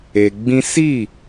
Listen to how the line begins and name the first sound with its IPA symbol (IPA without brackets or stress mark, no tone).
e